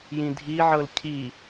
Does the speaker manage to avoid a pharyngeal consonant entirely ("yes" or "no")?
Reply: no